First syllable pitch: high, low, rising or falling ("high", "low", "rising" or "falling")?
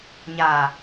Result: low